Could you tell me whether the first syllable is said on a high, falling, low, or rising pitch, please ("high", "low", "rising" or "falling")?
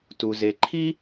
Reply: low